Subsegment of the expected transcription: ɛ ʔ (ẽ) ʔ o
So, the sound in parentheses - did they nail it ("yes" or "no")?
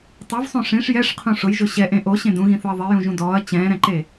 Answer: yes